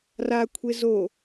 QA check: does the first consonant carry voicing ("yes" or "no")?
yes